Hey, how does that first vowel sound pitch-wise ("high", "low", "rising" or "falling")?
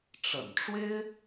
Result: low